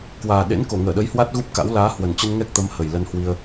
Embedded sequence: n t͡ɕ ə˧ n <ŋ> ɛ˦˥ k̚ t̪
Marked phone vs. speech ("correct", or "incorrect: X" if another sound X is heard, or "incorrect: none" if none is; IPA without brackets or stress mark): correct